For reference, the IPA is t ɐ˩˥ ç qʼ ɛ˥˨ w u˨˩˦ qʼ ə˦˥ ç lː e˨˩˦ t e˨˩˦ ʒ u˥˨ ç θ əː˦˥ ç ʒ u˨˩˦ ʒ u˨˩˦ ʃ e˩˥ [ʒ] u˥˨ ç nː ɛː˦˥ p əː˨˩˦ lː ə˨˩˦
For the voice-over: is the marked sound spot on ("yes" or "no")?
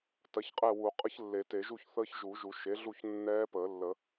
no